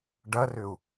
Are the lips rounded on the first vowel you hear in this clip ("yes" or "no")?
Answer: no